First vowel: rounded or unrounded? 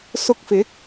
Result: rounded